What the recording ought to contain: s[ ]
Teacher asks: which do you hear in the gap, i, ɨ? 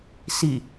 i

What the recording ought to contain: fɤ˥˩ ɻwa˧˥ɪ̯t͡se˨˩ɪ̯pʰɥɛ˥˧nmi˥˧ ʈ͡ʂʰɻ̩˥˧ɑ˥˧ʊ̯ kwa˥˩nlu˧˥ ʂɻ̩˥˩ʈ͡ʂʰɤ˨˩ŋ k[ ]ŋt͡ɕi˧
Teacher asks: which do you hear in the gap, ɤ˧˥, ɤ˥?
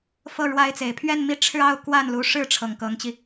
ɤ˧˥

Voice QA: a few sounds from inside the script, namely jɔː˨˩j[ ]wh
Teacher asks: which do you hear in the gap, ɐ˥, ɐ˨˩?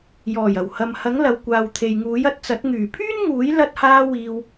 ɐ˨˩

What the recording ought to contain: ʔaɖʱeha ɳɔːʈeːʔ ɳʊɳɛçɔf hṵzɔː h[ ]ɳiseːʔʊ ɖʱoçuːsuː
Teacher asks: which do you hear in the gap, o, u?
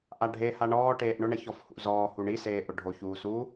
u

